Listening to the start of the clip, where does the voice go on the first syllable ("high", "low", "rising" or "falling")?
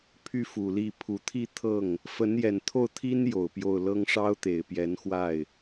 falling